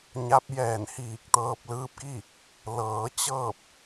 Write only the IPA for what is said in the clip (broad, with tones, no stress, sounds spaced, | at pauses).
ɲ a˧˥ p̚ j ɛː˧˩ n h iː˧˩ k̚ t̪ ɤː˧ p̚ l ɯː˧˥ p̚ k i˥˨ | l ɤː˩˧ t͡ɕ ɤː˥˨ p̚